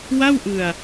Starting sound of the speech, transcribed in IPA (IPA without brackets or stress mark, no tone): w